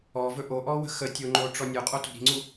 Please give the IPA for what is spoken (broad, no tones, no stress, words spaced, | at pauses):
ɔvɵ ʔoʔɔwə̤ xətʲoŋ͡ǃo ʈ͡ʂɔnʲo qʼoto̤ɾi̤ŋ͡ǀu